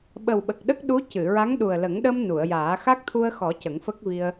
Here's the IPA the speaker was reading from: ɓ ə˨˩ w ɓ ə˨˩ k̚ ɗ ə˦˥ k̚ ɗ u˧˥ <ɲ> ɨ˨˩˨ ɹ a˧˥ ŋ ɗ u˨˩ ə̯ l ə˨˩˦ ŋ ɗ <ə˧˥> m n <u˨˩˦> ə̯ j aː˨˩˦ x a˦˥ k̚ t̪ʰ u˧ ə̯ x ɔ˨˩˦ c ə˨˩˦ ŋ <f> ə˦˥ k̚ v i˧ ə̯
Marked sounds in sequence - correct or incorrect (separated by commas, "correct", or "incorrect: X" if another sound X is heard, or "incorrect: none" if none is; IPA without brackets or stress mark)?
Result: incorrect: c, incorrect: ə˧, incorrect: u˨˩˨, correct